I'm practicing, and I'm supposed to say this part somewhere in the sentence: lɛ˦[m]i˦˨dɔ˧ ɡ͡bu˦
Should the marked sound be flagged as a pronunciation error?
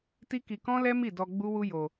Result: no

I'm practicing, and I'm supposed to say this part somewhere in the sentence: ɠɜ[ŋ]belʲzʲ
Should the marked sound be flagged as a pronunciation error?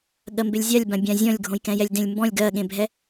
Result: yes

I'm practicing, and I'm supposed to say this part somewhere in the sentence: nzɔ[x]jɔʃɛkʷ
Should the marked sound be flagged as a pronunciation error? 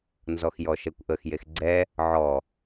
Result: no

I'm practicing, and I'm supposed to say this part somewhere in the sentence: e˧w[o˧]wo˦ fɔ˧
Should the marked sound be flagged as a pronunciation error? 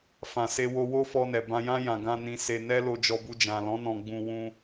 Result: no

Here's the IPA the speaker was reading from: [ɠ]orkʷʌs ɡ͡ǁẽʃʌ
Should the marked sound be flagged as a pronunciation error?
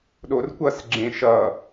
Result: yes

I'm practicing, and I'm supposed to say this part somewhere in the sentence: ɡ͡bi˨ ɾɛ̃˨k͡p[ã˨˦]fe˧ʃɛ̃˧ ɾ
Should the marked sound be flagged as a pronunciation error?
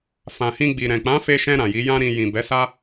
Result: no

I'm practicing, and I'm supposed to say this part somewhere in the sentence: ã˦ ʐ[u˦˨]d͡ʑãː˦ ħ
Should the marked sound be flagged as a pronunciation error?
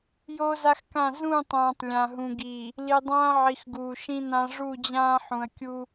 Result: no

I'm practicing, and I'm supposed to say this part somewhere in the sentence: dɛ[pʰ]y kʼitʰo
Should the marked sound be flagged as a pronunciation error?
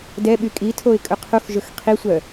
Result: yes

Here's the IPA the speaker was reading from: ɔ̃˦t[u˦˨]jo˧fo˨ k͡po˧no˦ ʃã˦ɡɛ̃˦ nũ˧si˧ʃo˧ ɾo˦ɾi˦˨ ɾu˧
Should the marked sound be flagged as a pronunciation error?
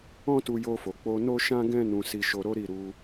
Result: yes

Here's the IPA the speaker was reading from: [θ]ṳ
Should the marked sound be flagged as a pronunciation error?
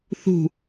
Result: no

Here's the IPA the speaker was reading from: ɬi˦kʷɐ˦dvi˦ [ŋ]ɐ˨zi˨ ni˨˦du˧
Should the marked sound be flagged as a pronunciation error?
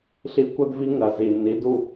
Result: no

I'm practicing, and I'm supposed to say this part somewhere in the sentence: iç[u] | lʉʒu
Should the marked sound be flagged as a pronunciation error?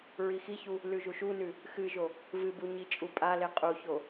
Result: no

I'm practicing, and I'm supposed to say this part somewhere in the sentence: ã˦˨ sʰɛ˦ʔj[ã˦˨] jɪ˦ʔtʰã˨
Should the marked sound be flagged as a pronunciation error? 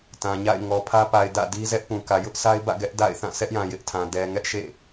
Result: yes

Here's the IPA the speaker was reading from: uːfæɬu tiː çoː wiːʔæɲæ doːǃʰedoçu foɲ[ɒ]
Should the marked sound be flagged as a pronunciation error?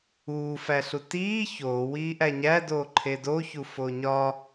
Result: no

